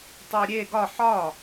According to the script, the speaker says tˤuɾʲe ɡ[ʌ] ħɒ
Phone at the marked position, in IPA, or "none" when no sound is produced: ɒ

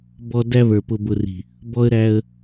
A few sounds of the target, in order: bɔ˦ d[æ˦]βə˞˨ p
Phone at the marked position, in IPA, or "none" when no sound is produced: æ˦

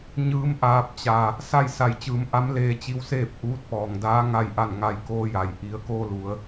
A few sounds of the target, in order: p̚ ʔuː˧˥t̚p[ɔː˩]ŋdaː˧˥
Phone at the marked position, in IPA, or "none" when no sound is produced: ɔː˩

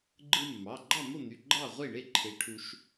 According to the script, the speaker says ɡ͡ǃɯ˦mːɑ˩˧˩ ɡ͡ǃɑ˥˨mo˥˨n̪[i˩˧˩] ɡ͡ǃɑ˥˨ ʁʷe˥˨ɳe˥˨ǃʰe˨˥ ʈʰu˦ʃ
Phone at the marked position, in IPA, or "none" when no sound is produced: y˩˧˩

